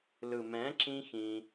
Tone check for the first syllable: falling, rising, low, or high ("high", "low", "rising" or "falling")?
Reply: low